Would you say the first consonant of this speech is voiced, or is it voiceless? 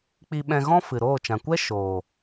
voiceless